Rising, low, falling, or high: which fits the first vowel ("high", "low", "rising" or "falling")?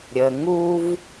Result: low